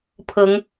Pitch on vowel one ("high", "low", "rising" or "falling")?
rising